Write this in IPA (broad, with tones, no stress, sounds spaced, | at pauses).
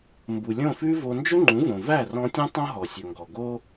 m b u˩ lʲ õ˥˩ f ʉ˥ v o˧ n d͡ʒ ɵ˥ ŋ͡ǃ ũ˩˥ v õ˩ v æ˥˩ r ɔ̃˧ tʲ ũ˥ tˤ õ˥ ɦ ɔ˩ sʲ ɵ˩ ŋ ɡ ɔ˩ ɡ o˥